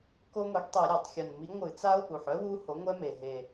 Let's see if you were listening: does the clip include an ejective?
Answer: no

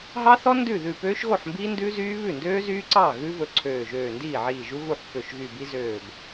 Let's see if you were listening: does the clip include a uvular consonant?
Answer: no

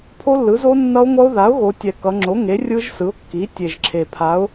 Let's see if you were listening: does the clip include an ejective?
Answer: no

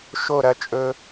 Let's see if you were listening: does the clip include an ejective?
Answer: yes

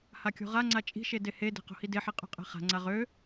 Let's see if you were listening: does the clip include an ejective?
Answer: yes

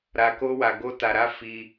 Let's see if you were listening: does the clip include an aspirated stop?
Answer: no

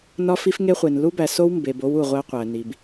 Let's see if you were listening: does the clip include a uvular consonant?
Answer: yes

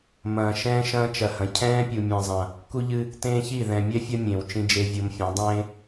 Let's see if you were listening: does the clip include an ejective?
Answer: no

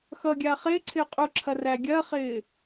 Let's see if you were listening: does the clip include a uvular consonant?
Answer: yes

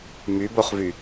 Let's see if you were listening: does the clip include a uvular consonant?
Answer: yes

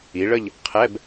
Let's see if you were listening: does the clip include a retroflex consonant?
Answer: yes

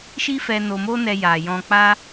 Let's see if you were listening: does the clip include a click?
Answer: no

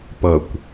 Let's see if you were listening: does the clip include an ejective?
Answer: no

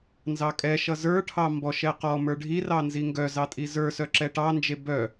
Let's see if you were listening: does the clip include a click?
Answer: yes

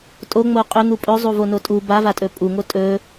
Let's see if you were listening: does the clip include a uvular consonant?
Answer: yes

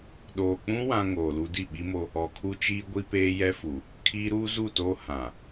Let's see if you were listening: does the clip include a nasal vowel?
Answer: yes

